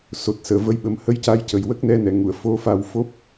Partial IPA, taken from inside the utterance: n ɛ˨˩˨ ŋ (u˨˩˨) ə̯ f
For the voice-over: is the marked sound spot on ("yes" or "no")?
yes